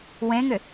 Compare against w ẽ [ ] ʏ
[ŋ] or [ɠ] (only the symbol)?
ŋ